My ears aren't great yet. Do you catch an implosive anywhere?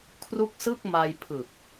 no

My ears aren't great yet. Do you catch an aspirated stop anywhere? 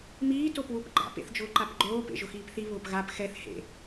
no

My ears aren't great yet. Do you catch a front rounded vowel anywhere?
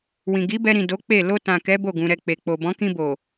no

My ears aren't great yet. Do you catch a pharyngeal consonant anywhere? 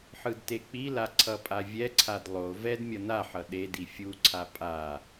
yes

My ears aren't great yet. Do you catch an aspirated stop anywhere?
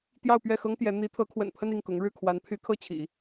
yes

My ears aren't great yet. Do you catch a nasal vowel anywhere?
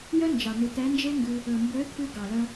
no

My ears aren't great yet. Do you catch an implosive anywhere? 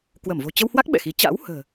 yes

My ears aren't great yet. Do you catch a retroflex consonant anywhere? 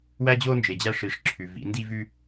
yes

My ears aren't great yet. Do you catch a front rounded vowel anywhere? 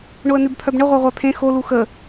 yes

